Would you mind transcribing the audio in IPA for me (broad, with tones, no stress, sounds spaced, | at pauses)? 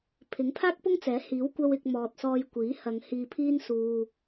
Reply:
pʰ ɪ˨˥ ŋ pʰ aː˥ k̚ p ʊ˥ ŋ t͡s ɛː˨˥ h iː˨˥ w kʷ ɐ˧ w ɪ˨ k̚ m ɔː˨ t̚ s ɔː˧ j kʷ iː˨˥ h ɐ˨˧ ŋ h iː˧ pʰ iː˥ n s uː˧